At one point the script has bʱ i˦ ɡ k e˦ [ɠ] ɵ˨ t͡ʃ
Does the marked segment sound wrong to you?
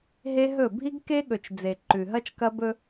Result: no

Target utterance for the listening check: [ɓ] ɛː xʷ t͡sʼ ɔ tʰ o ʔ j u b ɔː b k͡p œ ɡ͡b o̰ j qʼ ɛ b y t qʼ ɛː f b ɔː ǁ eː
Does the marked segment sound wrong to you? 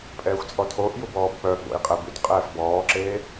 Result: yes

